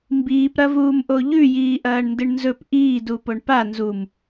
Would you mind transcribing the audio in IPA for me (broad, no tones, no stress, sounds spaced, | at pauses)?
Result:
m b iː p ɾ ɐ v uː m ʔ o ʎ ʉ j iː ʔ ɐː ɳ n d ɨ ɳ n z ɵ p ʔ iː d u p o ɳ p a n z u m